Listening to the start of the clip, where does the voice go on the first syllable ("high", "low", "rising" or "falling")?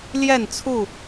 falling